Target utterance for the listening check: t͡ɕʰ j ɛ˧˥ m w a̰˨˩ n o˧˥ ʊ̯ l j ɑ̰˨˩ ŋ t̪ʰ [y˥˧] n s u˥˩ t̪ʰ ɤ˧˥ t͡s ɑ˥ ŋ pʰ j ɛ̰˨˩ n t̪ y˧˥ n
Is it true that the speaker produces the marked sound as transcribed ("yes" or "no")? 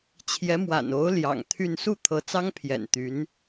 yes